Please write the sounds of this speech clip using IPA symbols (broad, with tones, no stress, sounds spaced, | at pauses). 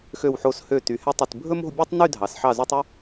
x ø˧˩ w ħ o˧˩ s h ø˧˩ t y˩˧ h ɛ˧ tˤ i˧˩ t bʱ ɵ˥ m o̤˥˧ bʲ ʉ˥ tˤ n y˥˧ dʱ ɑ˩˧ s ħ ɑ˧˩ z u˧ tˤ ʉ˥˧